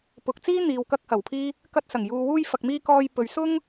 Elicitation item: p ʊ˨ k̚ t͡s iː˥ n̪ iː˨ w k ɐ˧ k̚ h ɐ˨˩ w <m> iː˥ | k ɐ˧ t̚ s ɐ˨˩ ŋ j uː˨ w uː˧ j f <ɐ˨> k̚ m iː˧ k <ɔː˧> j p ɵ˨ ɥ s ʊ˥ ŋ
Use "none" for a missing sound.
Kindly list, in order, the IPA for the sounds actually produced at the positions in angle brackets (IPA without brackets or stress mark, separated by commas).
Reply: pʰ, ɐ˨, ɔː˧